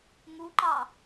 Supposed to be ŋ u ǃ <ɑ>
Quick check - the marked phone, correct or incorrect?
correct